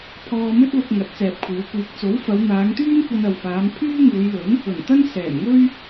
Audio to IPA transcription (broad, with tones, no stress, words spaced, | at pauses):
pʰɔː˧mɵ˥t̚lʊ˧k̚ ŋɐ˨˥t̚t͡sɛː˨p̚kʷʰiː˨˧wkʷiː˧k̚ t͡so˨˥wfɐ˨˧wn̪aː˨˧ŋt̪yː˥n kʷɐ˧nɐ˨wfaː˨˧m pʰyː˥ŋuː˨˧jlɵ˨˥n | ɵ˨˩nt̪ɐ˥n sɛː˨˩mŋɵ˥ɥ